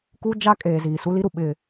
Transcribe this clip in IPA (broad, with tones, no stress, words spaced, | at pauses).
ku˦d͡ʒa˦ kʼeː˨ziː˨su˦li˦ ɾu˨ɓɪ˦